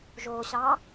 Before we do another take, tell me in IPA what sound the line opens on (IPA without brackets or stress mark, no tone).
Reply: ʒ